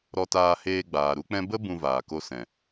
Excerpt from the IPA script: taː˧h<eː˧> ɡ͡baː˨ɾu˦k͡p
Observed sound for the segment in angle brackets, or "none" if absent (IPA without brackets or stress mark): eː˧